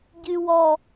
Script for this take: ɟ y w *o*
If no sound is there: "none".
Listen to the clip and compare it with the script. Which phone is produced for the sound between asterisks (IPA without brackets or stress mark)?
ɔ